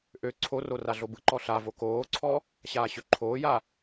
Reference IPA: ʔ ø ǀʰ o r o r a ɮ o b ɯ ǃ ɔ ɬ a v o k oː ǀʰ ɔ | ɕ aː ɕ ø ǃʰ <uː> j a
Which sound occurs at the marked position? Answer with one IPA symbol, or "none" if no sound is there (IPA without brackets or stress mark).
oː